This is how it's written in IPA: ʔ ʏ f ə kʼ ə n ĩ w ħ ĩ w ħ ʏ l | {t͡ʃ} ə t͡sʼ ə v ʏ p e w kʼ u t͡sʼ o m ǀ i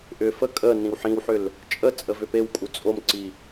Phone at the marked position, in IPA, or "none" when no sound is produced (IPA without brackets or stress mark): t͡ʃʼ